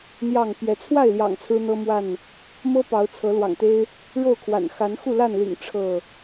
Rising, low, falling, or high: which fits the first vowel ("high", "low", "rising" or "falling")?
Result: falling